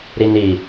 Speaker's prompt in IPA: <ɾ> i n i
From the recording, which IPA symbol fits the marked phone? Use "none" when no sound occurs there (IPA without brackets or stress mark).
ɾ